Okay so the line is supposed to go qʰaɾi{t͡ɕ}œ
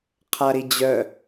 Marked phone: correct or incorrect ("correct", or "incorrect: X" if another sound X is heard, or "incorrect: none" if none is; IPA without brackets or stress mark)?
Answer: incorrect: d͡ʑ